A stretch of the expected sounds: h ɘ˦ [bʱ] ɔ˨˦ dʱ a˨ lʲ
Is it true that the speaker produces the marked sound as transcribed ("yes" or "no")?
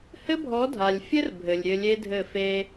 yes